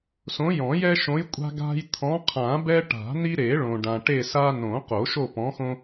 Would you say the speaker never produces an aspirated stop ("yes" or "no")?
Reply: no